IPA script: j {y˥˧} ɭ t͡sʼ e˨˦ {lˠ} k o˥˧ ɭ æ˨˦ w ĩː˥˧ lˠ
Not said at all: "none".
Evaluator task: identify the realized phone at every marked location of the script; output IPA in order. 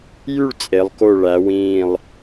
y˥˧, lˠ

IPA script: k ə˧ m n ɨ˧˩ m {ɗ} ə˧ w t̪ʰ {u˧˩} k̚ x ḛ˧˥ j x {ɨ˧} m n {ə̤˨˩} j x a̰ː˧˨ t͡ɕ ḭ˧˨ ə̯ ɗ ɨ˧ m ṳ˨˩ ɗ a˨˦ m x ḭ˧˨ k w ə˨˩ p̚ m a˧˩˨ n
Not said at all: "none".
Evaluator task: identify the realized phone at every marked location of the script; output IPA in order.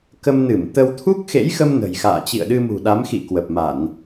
t̪, u˦˥, ə˧, ə̤˨˩

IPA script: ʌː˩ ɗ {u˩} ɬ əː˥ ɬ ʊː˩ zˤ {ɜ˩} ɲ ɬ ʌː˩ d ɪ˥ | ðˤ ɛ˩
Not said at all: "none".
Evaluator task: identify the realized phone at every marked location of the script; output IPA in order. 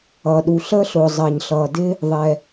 u˩, ɜ˩

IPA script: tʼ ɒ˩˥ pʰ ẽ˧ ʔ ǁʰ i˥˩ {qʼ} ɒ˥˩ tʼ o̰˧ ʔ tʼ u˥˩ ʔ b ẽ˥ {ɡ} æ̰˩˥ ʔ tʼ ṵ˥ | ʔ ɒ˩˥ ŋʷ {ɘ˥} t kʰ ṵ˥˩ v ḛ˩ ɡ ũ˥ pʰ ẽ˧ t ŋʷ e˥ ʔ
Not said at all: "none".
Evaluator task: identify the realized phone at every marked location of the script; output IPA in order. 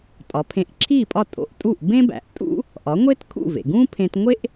pʼ, b, e˥

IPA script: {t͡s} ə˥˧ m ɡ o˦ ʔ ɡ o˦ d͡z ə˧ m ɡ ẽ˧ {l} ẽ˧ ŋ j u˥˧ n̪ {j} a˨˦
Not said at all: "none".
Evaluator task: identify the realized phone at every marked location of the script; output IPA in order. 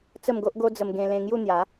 t͡s, l, j

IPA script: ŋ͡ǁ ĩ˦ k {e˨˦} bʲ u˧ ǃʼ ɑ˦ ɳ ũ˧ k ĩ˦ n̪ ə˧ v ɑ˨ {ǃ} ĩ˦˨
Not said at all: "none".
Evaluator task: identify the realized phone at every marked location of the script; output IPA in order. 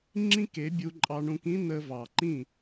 e˨˦, ǃ

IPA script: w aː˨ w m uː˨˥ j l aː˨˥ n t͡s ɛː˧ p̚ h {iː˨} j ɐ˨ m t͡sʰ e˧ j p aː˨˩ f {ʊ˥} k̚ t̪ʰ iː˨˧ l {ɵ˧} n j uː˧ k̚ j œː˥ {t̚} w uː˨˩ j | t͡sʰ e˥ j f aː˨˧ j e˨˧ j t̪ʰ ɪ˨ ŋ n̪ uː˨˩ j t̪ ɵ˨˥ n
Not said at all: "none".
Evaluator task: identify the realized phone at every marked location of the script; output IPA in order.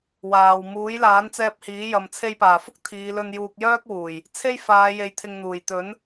iː˨˥, ʊ˥, ɵ˧, k̚

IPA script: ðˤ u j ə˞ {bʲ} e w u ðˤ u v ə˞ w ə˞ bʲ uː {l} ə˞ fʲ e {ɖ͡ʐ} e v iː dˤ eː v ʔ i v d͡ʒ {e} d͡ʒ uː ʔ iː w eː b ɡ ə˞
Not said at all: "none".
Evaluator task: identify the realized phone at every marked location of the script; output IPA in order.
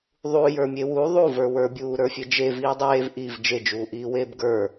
mʲ, ɾ, d͡ʒ, e

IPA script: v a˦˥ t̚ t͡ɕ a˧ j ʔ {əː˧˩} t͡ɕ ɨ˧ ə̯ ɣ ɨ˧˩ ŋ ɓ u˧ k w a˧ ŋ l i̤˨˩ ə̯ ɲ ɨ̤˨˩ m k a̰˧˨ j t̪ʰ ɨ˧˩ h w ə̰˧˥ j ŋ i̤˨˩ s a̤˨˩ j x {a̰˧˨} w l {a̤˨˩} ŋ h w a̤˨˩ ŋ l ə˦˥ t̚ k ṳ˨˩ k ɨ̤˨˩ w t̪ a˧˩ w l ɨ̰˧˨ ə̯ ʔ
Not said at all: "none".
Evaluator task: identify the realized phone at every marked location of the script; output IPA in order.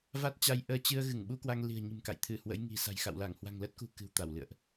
əː˧, a̰˧˨, a˧˩

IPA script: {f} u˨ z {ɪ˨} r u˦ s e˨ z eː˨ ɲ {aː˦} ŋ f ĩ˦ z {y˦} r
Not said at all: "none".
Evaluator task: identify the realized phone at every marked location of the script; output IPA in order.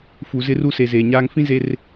f, ɪ˦, aː˦, e˦

